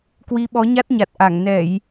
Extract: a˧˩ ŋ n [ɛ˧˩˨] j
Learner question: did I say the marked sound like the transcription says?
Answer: yes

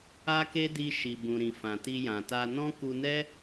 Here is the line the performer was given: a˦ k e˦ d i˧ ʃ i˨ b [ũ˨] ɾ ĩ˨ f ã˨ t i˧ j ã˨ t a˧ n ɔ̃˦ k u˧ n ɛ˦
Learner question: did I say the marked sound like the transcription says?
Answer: yes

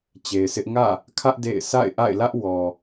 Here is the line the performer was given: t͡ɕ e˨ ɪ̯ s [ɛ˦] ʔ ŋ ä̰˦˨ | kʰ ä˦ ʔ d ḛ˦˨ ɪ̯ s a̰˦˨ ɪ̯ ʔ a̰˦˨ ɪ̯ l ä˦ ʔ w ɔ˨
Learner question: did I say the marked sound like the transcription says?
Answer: no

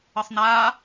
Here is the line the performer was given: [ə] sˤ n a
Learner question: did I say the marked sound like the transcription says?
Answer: yes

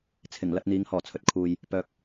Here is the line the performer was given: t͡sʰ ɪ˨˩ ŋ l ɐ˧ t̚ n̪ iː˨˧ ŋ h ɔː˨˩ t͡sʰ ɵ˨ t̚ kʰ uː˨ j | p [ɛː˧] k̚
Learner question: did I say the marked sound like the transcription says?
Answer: no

